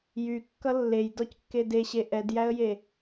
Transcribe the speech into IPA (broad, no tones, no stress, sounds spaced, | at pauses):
j y kː ʌ lː e j d ɔ c kː e d e ɕ e ʔ ɛ d j æ ə̯ j e